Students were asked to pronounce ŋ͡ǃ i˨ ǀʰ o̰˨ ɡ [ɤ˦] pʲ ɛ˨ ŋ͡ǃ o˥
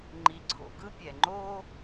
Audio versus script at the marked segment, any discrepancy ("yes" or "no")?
yes